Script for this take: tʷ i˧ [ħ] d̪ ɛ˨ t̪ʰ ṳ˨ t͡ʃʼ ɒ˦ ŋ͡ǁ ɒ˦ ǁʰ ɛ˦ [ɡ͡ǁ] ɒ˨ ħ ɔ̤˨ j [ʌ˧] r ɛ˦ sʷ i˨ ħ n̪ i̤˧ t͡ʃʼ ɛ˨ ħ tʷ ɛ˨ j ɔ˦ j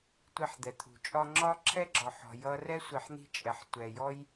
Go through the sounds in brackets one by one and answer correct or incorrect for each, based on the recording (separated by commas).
correct, correct, correct